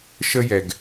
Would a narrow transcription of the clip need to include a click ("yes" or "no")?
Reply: no